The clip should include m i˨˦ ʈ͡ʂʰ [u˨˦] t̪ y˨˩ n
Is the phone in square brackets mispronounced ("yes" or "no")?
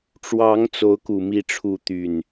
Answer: no